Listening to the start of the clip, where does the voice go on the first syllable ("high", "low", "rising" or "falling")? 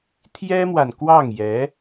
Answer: high